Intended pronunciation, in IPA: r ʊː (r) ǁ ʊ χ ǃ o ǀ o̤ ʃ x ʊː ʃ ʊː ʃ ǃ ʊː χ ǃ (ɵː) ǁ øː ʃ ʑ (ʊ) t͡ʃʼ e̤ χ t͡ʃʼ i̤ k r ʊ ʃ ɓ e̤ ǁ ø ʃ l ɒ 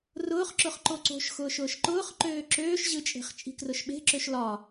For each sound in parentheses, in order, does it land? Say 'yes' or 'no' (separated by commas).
no, no, no